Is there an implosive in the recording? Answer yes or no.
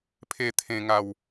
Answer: no